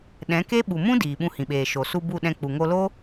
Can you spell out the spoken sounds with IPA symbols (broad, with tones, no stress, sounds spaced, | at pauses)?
ɗ ɛ̃˨˦ k e˦ ɓ u˨ m ũ˦ d iː˨ ɓ ũ˧ h ĩ˨ ɓ eː˨ ʃ o˨ s u˧ b u˦˨ ɗ ɛ̃˧ k͡p u˨ ŋ o˧ l o˦